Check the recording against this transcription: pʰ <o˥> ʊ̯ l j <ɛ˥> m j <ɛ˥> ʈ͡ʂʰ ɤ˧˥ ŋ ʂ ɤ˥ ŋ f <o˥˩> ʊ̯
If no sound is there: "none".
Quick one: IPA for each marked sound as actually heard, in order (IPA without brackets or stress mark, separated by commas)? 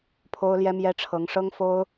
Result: o˥, ɛ˥, ɛ˥, o˥